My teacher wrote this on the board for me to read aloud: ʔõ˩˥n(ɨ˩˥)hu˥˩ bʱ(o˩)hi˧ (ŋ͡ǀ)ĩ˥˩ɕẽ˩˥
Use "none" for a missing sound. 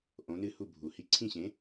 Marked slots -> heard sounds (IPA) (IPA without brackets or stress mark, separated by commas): ɨ˥˩, u˩, ǀʰ